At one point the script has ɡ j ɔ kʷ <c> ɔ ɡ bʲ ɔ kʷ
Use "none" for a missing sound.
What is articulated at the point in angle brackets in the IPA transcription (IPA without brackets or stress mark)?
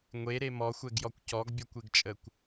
c